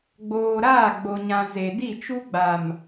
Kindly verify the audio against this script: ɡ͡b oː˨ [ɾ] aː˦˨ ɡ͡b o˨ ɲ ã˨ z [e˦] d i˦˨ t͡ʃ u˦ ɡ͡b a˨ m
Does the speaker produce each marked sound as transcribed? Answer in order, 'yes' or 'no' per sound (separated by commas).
yes, no